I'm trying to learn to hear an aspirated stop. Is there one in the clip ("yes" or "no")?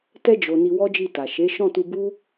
no